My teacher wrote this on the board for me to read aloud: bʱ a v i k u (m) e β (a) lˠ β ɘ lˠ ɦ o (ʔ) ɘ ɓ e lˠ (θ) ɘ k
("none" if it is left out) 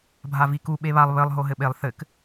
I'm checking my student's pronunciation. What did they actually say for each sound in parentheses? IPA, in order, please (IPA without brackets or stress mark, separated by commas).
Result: ɓ, a, ɦ, θ